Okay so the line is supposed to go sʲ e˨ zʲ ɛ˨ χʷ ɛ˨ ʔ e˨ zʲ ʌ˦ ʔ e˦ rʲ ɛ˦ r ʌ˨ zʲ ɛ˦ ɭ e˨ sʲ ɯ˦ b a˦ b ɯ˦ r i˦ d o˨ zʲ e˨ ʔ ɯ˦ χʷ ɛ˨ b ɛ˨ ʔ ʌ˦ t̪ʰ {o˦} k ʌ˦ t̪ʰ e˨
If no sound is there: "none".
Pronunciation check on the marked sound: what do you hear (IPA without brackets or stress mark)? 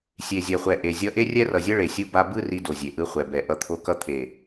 o˦